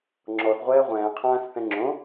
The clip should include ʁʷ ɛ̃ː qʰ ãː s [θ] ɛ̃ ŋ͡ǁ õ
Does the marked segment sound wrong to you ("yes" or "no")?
no